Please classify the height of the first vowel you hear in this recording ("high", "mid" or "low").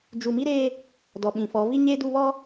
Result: high